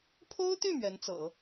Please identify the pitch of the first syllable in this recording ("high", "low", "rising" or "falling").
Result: high